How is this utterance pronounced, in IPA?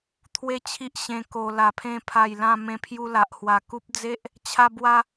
t̪ʰ w e˦ t͡ɕʰ i˦ ʔ ɕ ẽ˧ k o˧ l a˨˩ pʰ ẽ˧ pʰ a˨˩ j l ã˥˧ m ẽ˧ pʰ j u˧ l a˨ ʔ h w a˨˩ k u˦ p̚ d͡z e˦ ʔ | t͡ɕʰ a˦ b w a˦

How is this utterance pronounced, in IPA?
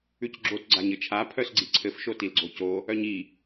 ʉ c ɡ͡ǁ o t ɡ͡ǀ a ɲ ɘ t͡ʃʰ a pʰ œ s ɡ͡ǀ i ǀʰ ɘ f ʃ o t i l ɡ͡ǀ o c o | œ ɲ i

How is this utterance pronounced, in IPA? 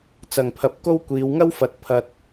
t͡s ɐ˧ ŋ pʰ ɐ˧ p̚ k o˥ w kʷ iː˨˧ w ŋ ɐ˥ w f ɐ˨ t̚ pʰ ɐ˥ t̚

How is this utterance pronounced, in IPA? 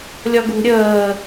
lʲ ɒ ɡ ṳ ɾʲ əː

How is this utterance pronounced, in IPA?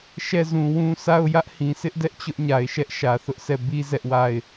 ʃ ɛ˦˨ z ũ˨ w ũ˦ s a˦˨ ʊ̯ j ä˦ ʔ h ĩ˨ s ɪ˦ ʔ d ɛ˦ ʔ t͡ɕ ʊ˦ ʔ ɲ a˨ ɪ̯ ʃ ɛ˦ ʔ ʃ ä˨ θ ʊ˦ ʔ sʰ ɛ˦˨ b i˦ z ɛ˦ ʔ w a˦˨ ɪ̯

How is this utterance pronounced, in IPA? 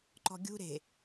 ǃ ɔ̤ ɡʲ ṳ ɾ e̤

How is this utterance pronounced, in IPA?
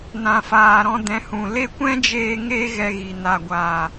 n ã˨ f aː˨ ɾ ɔ̃˧ d ɛ̃˨˦ h ũ˨ l e˦˨ kʷ ɛ̃˦ d͡ʒ eː˧ ŋ e˦ ɣ ɛ˧ ɣ i˨ n a˨ ɡʷ aː˨

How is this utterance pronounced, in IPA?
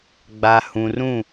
ɡ͡b a˨ h ũ˨ r ũ˦˨

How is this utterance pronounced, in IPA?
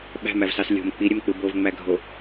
ɓ æ̤ m æ v s ɑ s lʲ o̤ m k͡p i ɾʲ ø m k͡p ɯ b o v ŋ͡m æ ɡʱ o

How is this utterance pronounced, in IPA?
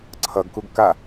ǀʰ ʌ ɡ k u ɡ k a

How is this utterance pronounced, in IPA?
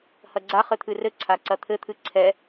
h ɐ ɡ͡ǀ a χ ɘ t̪ʰ ɨ r ɘ ǀʰ a ǀ ɐ t̪ʰ ɘ t̪ʰ ɨ ǀʰ ɛ

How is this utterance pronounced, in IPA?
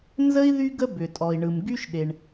n z ə˥ i̯ ð y˥ ɡ ə˥ b ʏ˩ tʼ ɔ˩ i̯ ɳ ɯ˩ m ɡ y˥ ʃ ɗ e˩ ɳ

